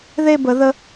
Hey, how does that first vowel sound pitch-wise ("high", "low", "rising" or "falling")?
falling